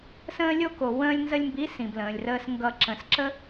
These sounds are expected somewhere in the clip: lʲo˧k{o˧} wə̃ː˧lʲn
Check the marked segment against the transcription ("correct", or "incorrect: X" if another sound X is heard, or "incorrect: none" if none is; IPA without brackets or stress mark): incorrect: o˨